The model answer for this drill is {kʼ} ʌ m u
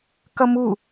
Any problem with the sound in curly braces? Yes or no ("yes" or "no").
yes